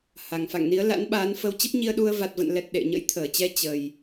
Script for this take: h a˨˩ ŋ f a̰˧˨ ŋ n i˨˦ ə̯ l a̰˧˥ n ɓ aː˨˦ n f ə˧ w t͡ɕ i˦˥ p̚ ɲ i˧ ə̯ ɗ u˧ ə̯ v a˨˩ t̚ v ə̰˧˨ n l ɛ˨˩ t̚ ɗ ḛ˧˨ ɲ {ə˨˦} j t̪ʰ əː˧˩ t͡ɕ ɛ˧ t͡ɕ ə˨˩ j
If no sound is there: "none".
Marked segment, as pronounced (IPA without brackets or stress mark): ə̰˧˥